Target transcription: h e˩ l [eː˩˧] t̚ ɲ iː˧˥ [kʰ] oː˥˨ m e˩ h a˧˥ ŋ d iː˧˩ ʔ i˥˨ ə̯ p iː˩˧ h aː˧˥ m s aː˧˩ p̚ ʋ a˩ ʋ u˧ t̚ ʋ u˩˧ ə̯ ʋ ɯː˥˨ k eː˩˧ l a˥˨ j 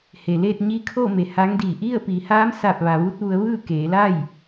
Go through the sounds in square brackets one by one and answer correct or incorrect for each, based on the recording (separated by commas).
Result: incorrect, correct